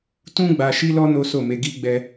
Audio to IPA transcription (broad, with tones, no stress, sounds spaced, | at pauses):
t ũ˦ ɡ͡b a˧ ʃ i˦ l ɔ˦ n o˦ s o˦˨ m e˧ ɡ i˦ ɡ͡b ɛ˧